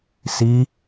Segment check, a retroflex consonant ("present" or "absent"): absent